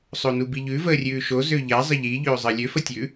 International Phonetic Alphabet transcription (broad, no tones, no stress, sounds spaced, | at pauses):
sˤ o n u b i ʎ ʉ v əː rʲ ʉː ʃ o z ø ʎ a zˤ ə ʎ i ʎ øː zˤ əː lʲ ø f ə tʲ ʉ